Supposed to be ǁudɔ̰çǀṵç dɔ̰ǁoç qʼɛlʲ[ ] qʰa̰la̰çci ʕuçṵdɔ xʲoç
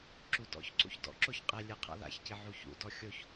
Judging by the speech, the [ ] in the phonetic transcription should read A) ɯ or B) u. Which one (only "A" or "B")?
A